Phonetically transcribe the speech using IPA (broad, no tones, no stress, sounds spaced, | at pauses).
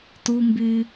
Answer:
t u m b y